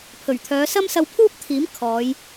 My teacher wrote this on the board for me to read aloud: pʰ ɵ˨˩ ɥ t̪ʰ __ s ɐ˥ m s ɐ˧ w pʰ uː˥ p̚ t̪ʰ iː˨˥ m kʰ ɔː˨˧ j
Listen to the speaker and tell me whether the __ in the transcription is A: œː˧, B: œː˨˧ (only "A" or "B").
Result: B